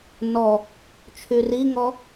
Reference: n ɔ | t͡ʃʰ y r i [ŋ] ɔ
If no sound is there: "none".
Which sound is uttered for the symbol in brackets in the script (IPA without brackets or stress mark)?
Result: ŋ